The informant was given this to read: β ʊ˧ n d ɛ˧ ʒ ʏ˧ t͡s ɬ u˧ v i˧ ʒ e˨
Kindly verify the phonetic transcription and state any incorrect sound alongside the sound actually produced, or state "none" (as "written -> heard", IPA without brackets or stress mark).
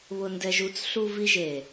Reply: ʏ˧ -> u˧